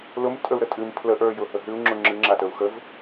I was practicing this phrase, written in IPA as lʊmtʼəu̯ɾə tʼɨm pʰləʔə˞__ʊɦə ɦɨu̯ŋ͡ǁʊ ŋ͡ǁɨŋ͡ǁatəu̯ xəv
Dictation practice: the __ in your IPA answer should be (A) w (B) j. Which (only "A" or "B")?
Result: B